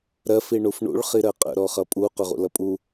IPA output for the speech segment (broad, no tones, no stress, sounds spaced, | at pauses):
ɾ ɜ f i ɳ u f ɳ ṵ ɭ χ i ɾ ɜ qʼ ə̰ ɾ ɔ χ ʌ pʼ u q ʊ ʁ ṵ l ʌ pʼ u